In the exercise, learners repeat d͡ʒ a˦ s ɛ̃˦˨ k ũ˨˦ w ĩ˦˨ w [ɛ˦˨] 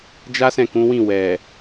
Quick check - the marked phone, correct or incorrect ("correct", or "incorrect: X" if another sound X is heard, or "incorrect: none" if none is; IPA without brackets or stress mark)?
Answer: incorrect: ɛ˨